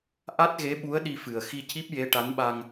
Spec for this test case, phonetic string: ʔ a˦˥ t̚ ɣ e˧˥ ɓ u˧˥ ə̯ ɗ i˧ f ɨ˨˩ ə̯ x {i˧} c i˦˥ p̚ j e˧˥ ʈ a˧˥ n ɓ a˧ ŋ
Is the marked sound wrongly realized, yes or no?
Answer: no